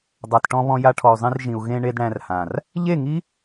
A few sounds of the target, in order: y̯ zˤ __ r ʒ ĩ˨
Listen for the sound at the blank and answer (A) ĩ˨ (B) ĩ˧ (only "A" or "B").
B